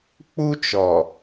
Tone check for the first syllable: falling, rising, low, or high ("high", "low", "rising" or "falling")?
high